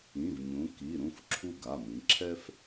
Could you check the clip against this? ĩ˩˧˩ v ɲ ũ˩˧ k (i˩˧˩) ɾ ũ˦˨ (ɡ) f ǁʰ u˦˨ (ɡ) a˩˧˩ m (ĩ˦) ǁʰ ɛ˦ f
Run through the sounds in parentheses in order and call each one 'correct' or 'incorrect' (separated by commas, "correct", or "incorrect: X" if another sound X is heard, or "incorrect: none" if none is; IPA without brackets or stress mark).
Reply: correct, incorrect: none, correct, incorrect: ĩ˩˧